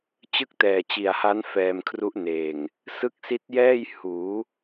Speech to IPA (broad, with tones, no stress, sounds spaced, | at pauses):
t͡ɕ ɯ˥˩ k̚ t ɛː˨˩ t͡ɕ i˨˩ a̯ h a˦˥ n f ɛː˧ m kʰ r u˦˥ ʔ n eː˨˩ ŋ | s ɯ˦˥ k̚ s i˦˥ t̚ j ɛː˥˩ j h uː˩˦